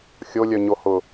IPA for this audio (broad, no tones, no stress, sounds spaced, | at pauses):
xʲ o lʲ œ ɲ o h ʊ